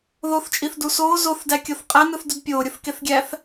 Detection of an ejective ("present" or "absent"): present